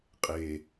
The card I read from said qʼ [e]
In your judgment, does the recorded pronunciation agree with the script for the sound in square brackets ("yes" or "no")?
yes